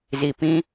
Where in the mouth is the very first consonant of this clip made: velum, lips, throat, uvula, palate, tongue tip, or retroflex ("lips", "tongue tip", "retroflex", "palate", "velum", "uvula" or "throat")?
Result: tongue tip